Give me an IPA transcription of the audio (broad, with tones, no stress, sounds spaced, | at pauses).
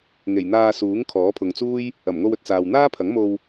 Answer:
ŋ e˨˩ j n̪ aː˧ s uː˨˥ ŋ kʰ ɔː˨˥ pʰ ʊ˨ ŋ t͡s uː˥ j | ɐ˨˩ m ŋ o˧ w ɵ˨ t̚ t͡s aː˨ w n̪ aː˥ pʰ ɐ˨˥ ŋ m o˧ w